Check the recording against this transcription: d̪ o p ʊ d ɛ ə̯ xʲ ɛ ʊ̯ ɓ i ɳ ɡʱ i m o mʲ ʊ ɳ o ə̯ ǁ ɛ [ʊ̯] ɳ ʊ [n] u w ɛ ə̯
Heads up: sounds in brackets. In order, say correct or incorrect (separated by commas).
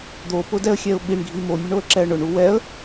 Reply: incorrect, incorrect